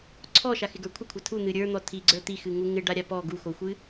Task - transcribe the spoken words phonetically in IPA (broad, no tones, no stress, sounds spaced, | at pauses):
ǀʰ ɔ ʃ a x ɪ ɡ ə˞ kʷʰ ɪ kʷʰ a tʰ u n̪ ɨ ɾʲ ə˞ n̪ ɔ tʰ i ɡ͡ǀ ə˞ t̪ i x ɨ ŋ u ŋ ɪ ɖ a ɾʲ a p ɔ ɡ u x o xʷ ɨ